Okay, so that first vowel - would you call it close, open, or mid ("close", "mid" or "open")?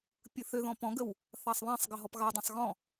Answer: close